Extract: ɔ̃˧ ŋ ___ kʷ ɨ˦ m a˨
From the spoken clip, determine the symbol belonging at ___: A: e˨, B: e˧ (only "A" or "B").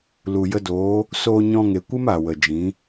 A